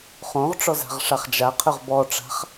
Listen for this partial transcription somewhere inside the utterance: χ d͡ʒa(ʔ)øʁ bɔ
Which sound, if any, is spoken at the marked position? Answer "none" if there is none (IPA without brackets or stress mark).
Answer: qʰ